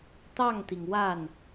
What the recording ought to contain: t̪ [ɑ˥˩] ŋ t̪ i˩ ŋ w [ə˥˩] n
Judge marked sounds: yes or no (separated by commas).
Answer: yes, no